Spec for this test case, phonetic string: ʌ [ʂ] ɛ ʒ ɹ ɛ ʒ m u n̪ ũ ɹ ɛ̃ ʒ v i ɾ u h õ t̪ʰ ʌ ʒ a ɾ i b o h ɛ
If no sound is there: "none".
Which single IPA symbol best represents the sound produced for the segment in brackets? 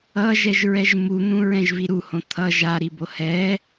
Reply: ʒ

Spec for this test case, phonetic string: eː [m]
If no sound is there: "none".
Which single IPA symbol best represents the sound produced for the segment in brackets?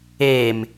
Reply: m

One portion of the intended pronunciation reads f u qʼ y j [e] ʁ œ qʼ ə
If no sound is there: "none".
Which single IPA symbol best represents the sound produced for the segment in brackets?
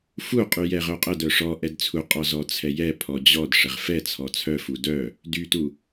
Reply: ɛ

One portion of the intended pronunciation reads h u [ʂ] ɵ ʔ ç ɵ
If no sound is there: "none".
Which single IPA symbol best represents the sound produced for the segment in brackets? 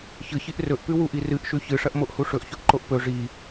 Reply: ʂ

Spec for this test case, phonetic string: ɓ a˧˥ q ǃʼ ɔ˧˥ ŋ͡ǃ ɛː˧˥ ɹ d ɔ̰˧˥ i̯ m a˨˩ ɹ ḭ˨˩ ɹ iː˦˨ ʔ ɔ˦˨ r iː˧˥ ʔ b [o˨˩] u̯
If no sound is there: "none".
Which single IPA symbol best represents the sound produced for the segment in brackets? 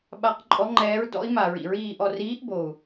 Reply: o˨˩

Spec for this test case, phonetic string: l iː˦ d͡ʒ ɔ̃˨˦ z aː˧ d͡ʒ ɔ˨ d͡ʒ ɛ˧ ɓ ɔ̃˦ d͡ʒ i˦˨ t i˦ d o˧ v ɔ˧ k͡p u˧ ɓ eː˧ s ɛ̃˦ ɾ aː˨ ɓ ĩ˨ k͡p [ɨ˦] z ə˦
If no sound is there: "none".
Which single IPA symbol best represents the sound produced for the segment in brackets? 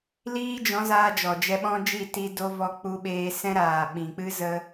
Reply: ɨ˦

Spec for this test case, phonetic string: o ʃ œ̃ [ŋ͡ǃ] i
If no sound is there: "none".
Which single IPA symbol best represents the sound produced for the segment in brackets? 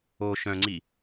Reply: ŋ͡ǀ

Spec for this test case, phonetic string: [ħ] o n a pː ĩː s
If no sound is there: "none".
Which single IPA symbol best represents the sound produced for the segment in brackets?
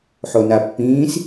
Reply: ħ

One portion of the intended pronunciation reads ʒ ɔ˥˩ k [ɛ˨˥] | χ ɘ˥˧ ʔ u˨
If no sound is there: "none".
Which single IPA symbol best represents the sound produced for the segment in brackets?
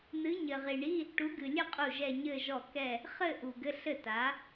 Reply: ɛ˥˧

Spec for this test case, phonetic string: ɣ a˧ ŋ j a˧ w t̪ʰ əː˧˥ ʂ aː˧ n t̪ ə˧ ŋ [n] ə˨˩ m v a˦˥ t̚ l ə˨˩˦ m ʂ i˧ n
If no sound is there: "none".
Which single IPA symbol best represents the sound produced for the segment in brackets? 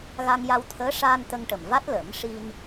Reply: ʈ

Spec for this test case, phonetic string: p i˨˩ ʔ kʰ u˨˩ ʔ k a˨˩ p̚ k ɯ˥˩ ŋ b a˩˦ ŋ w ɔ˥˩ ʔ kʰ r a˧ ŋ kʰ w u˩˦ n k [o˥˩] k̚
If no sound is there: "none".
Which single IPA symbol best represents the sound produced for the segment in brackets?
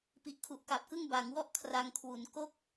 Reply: o˥˩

